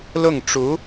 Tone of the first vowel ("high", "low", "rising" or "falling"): falling